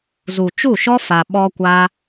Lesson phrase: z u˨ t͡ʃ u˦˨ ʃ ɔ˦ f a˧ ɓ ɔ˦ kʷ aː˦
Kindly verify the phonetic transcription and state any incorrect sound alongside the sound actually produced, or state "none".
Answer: none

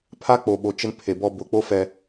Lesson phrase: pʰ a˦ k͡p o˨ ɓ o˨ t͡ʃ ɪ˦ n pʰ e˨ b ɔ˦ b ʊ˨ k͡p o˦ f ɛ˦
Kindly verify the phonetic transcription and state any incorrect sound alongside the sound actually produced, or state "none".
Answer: none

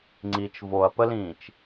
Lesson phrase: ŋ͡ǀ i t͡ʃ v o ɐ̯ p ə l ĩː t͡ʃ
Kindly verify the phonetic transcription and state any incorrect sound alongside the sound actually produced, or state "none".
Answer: none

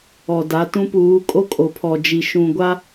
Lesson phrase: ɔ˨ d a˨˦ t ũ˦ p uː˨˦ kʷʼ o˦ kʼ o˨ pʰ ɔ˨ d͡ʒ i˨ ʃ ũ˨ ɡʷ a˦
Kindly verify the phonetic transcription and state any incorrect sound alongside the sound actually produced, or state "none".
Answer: kʷʼ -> kʼ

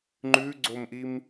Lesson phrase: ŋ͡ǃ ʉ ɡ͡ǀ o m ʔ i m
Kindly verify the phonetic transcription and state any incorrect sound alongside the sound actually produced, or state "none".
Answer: none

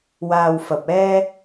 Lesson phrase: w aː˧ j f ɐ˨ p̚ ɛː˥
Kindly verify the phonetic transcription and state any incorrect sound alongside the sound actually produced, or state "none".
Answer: j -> w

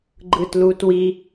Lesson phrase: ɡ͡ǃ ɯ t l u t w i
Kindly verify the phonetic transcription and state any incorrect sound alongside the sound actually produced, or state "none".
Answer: none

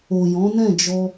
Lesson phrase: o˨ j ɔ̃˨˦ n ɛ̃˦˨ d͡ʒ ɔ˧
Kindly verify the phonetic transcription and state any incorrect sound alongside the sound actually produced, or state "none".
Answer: none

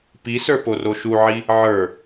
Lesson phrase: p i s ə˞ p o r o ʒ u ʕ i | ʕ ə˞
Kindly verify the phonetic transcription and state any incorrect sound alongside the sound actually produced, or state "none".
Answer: ʒ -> ʃ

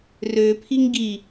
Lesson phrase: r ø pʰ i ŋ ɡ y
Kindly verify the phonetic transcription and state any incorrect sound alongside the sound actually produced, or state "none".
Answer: y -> i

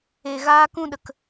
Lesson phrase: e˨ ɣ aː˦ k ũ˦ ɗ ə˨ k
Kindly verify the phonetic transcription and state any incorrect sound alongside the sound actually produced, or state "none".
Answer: none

